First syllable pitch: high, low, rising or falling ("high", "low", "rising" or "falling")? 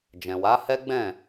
low